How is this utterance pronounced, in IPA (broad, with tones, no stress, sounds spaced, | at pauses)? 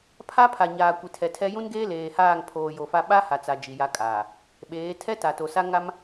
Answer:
pʰ a˦ pʰ a˨ ɲ aː˨ kʷ i˨ tʰ ɛ˨ tʰ ɛ˦ j ũ˦ n ɡ eː˦ l eː˨ h aː˦˨ ŋ pʰ oː˨ j o˨ f a˦ ɓ a˦ h a˨ t͡s a˨ d͡ʒ i˨ j a˦ kʼ aː˨ | ɓ eː˨˦ tʰ ɛ˦ t a˨ t o˨ s a˦ ŋ a˦ m